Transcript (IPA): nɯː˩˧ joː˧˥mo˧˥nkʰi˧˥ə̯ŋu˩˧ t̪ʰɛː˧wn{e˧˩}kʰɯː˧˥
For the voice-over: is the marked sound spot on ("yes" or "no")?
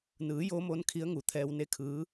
no